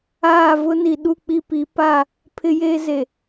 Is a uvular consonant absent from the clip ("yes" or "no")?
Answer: yes